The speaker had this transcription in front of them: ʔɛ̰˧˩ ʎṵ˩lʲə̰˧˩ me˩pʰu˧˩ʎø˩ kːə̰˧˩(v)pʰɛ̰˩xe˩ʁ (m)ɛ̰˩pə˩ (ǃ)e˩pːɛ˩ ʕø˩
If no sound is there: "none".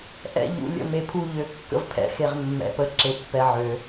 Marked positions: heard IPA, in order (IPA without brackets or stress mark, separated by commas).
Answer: v, mː, ǁ